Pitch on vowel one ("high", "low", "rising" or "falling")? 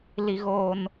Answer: high